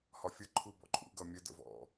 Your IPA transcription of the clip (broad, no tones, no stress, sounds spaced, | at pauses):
h ɒ fʲ ʌ ǃʰ u b ɔ̰ ǃʼ ṵ ɡ ʌ mʲ ə d ə̰ v ɔ̰